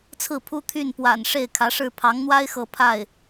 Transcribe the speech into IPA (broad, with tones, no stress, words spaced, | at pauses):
t͡sʰɹ̩˥˩pʰu˥ t̪ʰy˥˩npwa̰˨˩n ʂe˥˩ɪ̯kʰä˧˥ʂɻ̩˥˩ pʰɑ˧˥ŋn̪wa˥ɪ̯ xɤ˥ pʰa˥˩ɪ̯